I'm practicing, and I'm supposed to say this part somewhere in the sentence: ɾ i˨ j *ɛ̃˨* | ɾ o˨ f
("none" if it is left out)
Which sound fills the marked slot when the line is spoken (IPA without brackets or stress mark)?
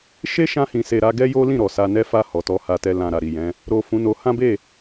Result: ɛ̃˨˦